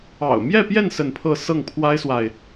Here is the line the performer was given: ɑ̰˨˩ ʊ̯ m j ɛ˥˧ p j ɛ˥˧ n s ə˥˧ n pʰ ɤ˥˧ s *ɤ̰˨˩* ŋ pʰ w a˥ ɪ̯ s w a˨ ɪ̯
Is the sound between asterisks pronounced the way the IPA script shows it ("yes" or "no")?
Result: no